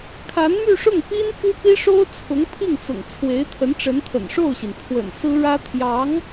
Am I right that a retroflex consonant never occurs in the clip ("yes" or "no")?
no